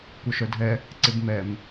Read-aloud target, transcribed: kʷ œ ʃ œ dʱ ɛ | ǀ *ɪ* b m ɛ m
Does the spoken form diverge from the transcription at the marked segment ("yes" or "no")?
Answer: no